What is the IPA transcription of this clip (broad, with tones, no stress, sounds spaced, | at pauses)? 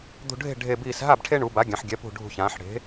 d̪ ṳ˧˩ ɖʱ e̤˥˩ ɖʱ e˧˩ b iː˧˩ s ɦ a˥˩ b ʈʰ e˦ ɳ u˩˧ b a˩˥ ɡʲ ã˩˧ ħ ɡʲ ɛ˩˥ p ṳ˧˩ ɖʱ ṳ˧˩ ç ãː˩˧ ħ ɽ e̤˩˥